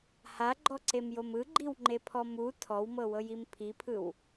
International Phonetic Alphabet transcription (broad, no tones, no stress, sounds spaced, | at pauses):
h a ɡ͡ǃ ɔ ǀ e m j o m ɯ ɡ͡ǃ i w ŋ͡ǃ e pʰ ɔ m u tʰ ɔ w m ɤ w ɤ j i m pʰ i pʰ ɯ w